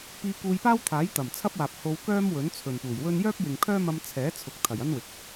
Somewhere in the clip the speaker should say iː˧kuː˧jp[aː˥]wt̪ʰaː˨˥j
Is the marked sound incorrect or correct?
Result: correct